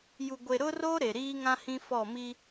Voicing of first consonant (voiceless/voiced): voiced